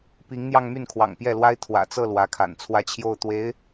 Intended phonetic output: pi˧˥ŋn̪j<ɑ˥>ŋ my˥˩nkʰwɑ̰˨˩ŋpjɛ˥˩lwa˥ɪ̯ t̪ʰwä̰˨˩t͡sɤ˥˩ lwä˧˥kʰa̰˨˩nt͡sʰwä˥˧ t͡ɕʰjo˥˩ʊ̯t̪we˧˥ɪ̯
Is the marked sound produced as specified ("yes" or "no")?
no